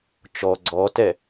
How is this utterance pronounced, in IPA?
t͡ʃ ɔ ɡ͡ǀ ɔ t ɛ

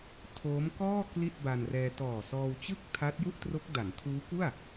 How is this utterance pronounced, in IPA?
tʰ oː˦˥ m k ɔː˥˩ k l i˥˩ t̚ b a˧ n r ɛː˧ t ɔː˨˩ s ɔː˧ w t͡ɕ ɯ˥˩ k̚ tʰ a˦˥ t̚ j u˥˩ ʔ t r o˦˥ k̚ d a˩˦ n tʰ uː˦˥ k u˥˩ a̯

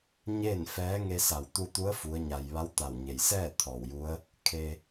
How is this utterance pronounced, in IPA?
ɲ eː˥˨ n f ɛː˧˥ ŋ e˧ s a˧˩ w t̪ u˧ t̪ u˧˥ ə̯ f u˧˥ ə̯ ɲ a˧ j ʋ a˧˥ w t̪ a˧˩ w ɲ e˩ j s ɛː˥˨ t̪ʰ ɔː˧˩ w j u˧˥ ə̯ | kʰ e˧

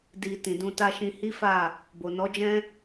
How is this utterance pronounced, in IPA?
d i˨ t ĩ˨ d ũ˧ t a˦ ʃ ĩ˧ h i˦ f a˦˨ | b o˨ n ɔ˨˦ d͡ʒ ɛ̃˦

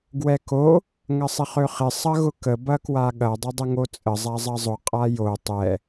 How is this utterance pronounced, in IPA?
ɡ w ɛ k o | ŋ ɐ sˤ ɪ χ ø χ ɪ sˤ ɐ ɣ ʊ k ə b ɐ k w a ɠ ɐ dˤ ʊ dˤ ə ŋ o t͡sʼ ə zˤ a zˤ ɐ zˤ ʊ qʼ a j o tˤ ɛ

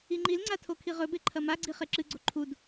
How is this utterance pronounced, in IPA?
i ŋ͡ǃ i l ŋ͡ǀ a tʰ o kʰ i ʁ ɵ b e ǃʰ ɐ m a ɡ͡ǀ i χ e ǁ ɨ ɡ͡ǀ o ǃʰ u d

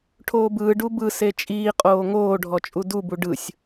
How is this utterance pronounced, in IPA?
ʈʰ oː b ɯː ɖ u b ɯ s e t͡ʃʼ iː qʼ oː ŋ oː ɖʱ ɔ t͡ʃʼ u d u b u ɖ ɯ sʲ

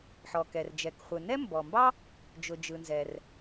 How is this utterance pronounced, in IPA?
ħ ɔ˩ k ɛ˩ r d͡ʒ ɛ˩ k χʷ ɯ˩ n ɛ˥ m b ɔ˩ m b ɑ˥ | d͡ʒ ʊ˩ d͡ʒ ɯ˩ n z ɛ˩ r

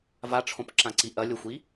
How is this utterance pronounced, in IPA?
v a ʈ͡ʂʰ õ p ǁ ã ǀ i ʔ ɐ lʲ o xʷ i

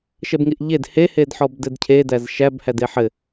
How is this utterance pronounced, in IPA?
ʃ ɛ b ŋ i ʔ ʎ e d h e h e d ħ ɔ b d ɘ d cʰ e d æ z ʃ æ b h æ d e ħ ɘ

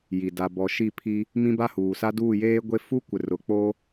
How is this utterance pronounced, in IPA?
j i˨ d a˨ b ɔ˨ ʃ i˦˨ pʰ i˦ | m ĩ˦ b a˦ h uː˨ s a˦ d uː˦˨ j eː˦ ɡʷ e˦ f u˦ kʷ ɪ˨ r ʊ˨ k͡p o˦

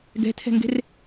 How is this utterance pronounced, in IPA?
ɡ ɛ̤ tʰ ɛ̤ ŋ ɡ e̤ r

